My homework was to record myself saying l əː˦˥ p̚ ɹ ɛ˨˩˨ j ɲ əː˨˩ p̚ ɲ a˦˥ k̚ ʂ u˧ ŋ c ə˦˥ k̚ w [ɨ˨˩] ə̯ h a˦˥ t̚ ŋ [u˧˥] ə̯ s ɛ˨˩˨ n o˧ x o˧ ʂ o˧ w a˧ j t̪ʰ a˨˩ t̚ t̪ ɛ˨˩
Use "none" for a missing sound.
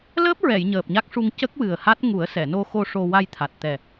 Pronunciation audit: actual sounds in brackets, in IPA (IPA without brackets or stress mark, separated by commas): ɨ˨˩, u˨˩˦